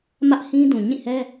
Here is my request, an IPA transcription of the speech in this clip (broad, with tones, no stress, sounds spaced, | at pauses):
m ä˦ ʔ h ĩ˦ d ũ˨ ɲ ĩ˦˨ h ɛ˦